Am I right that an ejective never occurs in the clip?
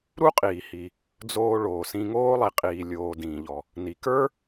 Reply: no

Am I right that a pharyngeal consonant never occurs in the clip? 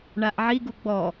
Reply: no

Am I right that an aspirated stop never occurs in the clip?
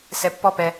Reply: yes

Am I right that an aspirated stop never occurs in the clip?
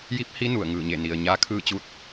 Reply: no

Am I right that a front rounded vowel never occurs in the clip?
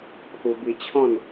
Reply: yes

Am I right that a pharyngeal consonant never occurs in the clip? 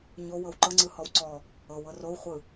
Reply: yes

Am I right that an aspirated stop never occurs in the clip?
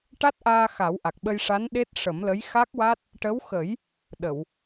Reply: yes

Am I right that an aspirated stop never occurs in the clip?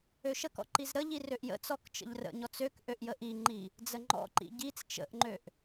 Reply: yes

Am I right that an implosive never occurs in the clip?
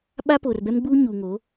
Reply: no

